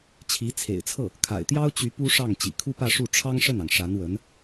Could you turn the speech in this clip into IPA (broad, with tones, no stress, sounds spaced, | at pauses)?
t͡ɕʰ i˧˥ t͡sʰ ḛ˨˩ ɪ̯ t͡sʰ ɤ˥˩ | kʰ a̰˨˩ ɪ̯ t̪ j ɑ˥ ʊ̯ t͡ɕ y˧˥ p u˥ ʂ ɑ˥˩ ŋ t͡ɕ ḭ˨˩ kʰ u˥ p ä˥˧ ʂ u˥˩ ʈ͡ʂʰ ɑ˥ ŋ ʂ ə˥˩ n ɑ˩ ŋ ʂ a˧˥ n w ə˧˥ n